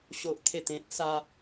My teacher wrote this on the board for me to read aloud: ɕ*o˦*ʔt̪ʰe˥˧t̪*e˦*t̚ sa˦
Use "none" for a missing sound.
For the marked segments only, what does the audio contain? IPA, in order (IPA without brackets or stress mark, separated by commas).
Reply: o˦, ẽ˦